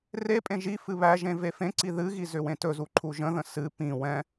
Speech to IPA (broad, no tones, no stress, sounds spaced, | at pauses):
r e pʼ ẽ ʒ i f ɨ β æ ʒ ẽ v e f ẽ ǀ i ð ɨ ɣ i z ʏ w ẽ t ɵ z u ǃʰ u ʒ ə̃ ð ə̃ s ɨ p ĩ w ɛ̃